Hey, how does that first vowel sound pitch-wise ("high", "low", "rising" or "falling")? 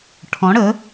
rising